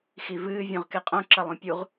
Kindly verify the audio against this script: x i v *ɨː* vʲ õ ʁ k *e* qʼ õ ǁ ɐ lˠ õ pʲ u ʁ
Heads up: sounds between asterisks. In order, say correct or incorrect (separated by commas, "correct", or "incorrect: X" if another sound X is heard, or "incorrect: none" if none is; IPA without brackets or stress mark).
correct, correct